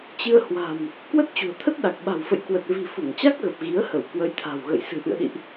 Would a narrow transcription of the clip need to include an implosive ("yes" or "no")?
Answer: yes